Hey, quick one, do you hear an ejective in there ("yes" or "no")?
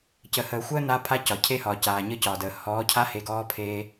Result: no